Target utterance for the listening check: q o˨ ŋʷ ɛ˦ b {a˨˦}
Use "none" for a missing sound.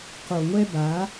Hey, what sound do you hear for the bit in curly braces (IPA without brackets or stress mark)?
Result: a˨˦